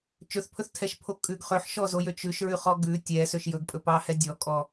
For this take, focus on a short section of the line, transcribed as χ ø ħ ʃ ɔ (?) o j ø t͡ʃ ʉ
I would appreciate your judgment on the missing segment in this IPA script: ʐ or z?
z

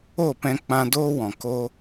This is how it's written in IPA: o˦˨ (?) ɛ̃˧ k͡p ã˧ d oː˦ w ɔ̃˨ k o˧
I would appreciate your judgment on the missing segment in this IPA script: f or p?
p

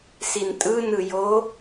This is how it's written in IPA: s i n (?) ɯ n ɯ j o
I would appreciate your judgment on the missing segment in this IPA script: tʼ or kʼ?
tʼ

